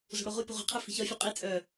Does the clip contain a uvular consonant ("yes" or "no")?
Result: yes